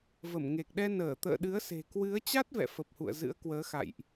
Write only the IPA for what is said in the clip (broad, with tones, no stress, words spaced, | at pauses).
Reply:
və˧˩mŋe˨˩k̚ɗɛ˧ nəː˧˩t̪ə̰ː˧˨ɗɨ˨˦ə̯se̤˨˩ kwɨ˨˦ə̯ t͡ɕa˦˥t̚vɛ̰˧˨ fə˨˩p̚hṵ˧˨ə̯ zɨ̰˧˥ə̯kwəː˨˦xa̰˧˨jʔ